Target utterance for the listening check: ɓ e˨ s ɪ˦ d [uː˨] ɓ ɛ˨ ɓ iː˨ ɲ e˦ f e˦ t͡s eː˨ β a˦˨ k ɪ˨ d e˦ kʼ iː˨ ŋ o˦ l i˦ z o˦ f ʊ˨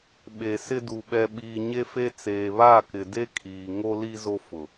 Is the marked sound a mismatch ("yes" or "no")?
yes